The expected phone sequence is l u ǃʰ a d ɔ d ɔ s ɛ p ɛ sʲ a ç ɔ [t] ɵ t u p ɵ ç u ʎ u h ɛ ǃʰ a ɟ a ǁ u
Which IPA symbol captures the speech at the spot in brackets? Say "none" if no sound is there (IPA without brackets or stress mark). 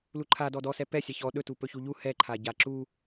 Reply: ɗ